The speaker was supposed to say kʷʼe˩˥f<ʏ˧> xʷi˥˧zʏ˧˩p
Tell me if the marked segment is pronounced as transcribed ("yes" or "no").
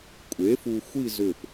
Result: no